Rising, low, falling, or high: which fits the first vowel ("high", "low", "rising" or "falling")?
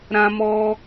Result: high